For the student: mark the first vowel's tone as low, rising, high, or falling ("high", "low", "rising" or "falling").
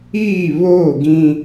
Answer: falling